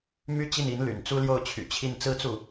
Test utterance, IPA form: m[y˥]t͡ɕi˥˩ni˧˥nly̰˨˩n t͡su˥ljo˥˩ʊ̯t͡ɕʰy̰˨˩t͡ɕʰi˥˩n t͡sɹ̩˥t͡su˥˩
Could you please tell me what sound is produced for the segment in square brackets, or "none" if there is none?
y˥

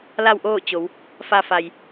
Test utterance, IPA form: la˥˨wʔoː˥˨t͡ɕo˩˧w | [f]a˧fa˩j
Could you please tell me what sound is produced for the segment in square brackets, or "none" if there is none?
f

